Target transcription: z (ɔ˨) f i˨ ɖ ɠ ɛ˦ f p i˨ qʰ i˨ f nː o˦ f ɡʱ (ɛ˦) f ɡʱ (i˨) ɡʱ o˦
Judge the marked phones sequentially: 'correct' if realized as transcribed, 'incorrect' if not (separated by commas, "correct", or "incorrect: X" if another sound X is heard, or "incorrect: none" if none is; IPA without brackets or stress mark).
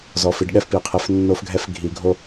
correct, correct, correct